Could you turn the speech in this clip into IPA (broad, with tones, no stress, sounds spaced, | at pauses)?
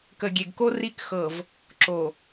k ə˨ ɡʲ e˨ ɡ k o˦ r i˦ k x ɤ˨ v | ǁ o˨